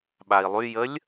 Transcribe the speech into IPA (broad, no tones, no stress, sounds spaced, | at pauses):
ɓ a i̯ lˠ y j ə lʲ